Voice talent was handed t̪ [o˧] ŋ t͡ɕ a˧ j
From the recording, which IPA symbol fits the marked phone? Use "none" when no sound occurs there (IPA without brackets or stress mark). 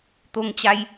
o˧